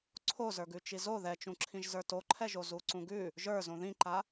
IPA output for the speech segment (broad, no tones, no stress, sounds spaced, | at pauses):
ǀʰ o z ə˞ ɡ ʉ t͡ʃ i z o ð ɛ t͡ʃ ũ ǁʰ ĩ ʒ z ə˞ t o ǃʰ ɛ ʒ o z u ǀ ũ ɡ ʉ | ʒ ə˞ z õ ð ĩ ǃ a